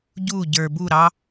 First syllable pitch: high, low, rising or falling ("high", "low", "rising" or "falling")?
falling